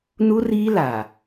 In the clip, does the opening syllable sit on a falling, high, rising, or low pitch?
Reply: high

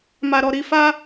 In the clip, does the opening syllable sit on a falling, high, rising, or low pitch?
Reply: low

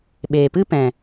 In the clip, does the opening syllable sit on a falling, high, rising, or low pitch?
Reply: low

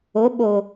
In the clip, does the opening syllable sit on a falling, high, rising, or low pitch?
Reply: rising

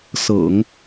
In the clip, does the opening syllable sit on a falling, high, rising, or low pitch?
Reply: low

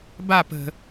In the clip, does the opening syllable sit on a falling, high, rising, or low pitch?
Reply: falling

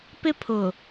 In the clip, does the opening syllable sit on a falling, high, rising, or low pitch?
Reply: high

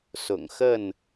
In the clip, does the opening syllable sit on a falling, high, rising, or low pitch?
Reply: low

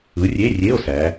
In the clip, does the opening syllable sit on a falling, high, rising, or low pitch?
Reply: rising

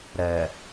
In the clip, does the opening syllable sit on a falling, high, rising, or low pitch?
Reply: low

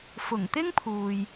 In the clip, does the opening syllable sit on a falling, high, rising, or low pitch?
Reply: low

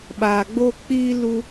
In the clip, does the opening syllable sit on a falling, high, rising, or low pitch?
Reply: low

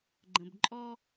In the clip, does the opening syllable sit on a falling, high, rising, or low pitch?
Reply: low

